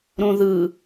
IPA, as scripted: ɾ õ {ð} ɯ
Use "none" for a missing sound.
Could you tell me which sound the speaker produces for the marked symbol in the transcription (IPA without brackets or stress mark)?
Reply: ð